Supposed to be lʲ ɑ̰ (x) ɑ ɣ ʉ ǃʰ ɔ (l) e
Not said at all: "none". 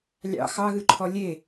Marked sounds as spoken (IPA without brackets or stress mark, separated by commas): x, lʲ